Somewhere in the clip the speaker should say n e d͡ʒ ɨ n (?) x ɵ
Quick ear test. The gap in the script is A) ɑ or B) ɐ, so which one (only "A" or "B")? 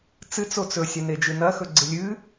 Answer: B